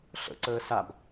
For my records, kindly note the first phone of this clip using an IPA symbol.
ɬ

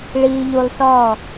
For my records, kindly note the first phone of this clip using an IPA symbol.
ɭ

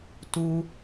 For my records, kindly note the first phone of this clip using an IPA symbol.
t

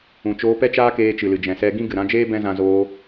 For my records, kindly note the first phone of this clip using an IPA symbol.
ũ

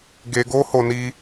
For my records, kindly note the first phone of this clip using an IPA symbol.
ɡ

